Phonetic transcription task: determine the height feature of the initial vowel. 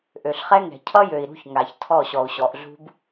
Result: mid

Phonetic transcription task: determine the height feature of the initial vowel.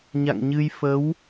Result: low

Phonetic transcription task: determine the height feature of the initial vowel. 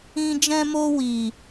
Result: high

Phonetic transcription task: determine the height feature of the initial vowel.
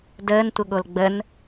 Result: mid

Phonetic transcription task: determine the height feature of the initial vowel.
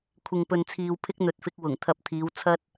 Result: high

